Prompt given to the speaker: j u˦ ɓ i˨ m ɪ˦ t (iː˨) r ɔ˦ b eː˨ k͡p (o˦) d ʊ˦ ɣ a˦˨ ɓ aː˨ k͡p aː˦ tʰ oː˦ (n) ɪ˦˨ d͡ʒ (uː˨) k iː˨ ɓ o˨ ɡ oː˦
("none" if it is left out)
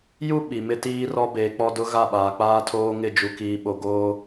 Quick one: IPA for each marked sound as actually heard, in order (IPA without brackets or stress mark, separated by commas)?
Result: iː˦, ɔ˦, ŋ, u˨